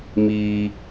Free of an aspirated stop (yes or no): yes